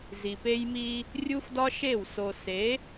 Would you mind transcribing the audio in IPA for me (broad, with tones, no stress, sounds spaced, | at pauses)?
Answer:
z i˨ p e˦ j m i˦ | rʲ u˦ f d ɒ˦ ʃ e˦˨ w s o˨ s e˨˦